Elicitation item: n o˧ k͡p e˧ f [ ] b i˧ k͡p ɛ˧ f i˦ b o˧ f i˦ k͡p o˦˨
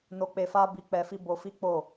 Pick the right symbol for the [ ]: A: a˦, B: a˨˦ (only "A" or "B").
A